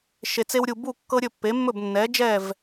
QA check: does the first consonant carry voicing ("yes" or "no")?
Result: no